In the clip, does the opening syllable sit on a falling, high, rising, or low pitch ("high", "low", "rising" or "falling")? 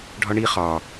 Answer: high